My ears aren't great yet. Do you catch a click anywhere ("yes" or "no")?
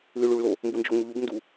no